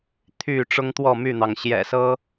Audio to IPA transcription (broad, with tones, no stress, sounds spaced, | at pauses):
t̪ʰ y˥˨ ʈ͡ʂ ʊ˦ ŋ t̪ w ɔ˥˨ m y˥˨ n̪ ɑ˩ ŋ ɕ j ɛ̰˨˩ s ɤ˦